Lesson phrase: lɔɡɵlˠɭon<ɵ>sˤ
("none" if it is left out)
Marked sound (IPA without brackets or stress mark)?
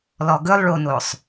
o